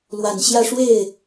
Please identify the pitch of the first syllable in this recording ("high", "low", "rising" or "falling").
low